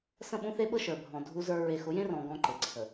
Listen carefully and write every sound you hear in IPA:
s ə̃˦˨ ɓ ũ˦ θ e˦ ɓ ɤ˦ ʃ ə˞˨ bʱ ɔ̃˨ dʱ u˦ z ə˞˦ ɹ e˨ x ʊ˨˦ j ẽ˦ r ɔ̃˨ ɡ ɔ̃˦ ǃ e˨ ǀʰ ə˨

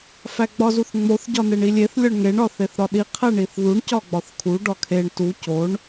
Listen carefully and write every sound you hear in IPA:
f æ ɡ͡b ɒ z u θ ŋ͡m o θ ɟ ɒ n e ɳ i lʲ e θ lʲ ɒ ɳ ŋ e ɳ ɒ θ e θ ɾ ɒ ɗ i qʰ æ ɳ i θ ð u ɳ c ɒ ɡ͡b ɒ θ kʰ u ɖ ɒ kʰ e ɳ t u c o ɳ

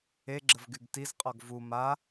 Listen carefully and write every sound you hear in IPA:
e ɡ͡ǁ ə v ɡ y ɡ t i z qʼ ɔ ɡ v u m a

